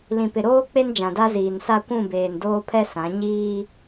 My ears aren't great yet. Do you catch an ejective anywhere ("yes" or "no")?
no